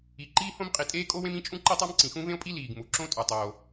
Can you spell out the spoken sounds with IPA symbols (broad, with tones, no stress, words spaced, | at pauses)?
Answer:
i˩ ǃiː˥hõ˥mqʼi˩ tʼeː˥kʼo˥wẽ˥mĩ˥ t͡ʃʼũ˥ǃe˥tˤɒ˥m ǀĩ˩xũ˥vẽ˥o̯pʼi˥ liː˩ɡmu˩ǁõ˥tʼu˩ tˤoː˩